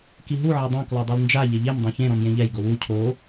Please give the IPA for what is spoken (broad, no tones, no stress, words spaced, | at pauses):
kiɦu ʕɛdˤõ klɔdˤilnd͡ʒa ʎeʎem dˤõçẽ ɾɔ̃mjẽʎɛj ɡowu cʰo